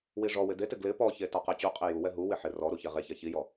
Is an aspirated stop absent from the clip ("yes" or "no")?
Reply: yes